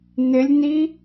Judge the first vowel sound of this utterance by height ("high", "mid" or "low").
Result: high